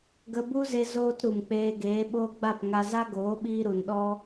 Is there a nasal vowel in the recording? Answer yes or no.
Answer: no